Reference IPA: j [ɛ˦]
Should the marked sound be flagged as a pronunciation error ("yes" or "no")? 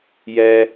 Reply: no